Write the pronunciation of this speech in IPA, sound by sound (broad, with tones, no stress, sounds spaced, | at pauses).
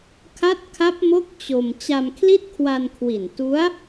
kʰ a˦˥ t̚ kʰ a˦˥ p̚ m o˦˥ k̚ t͡ɕ o˧ m t͡ɕ a˧ m kʰ l i˥˩ t̚ kʰ w a˧ n kʰ w i˨˩ n t u˦˥ a̯